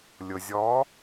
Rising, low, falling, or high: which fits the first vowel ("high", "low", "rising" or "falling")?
low